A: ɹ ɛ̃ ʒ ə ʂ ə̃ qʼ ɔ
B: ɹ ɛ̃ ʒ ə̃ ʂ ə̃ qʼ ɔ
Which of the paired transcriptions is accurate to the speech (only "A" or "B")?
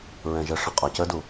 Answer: A